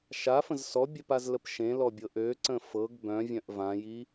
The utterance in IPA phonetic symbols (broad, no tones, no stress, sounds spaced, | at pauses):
ʃ a f ə̃ z s ɔ bʲ œ p a z l ə p ʃ ẽ l ɔ bʲ ɤ ʔ ø ǀ ə̃ f ɤ ɡ b œ̃ vʲ œ̃ ʔ v ã j i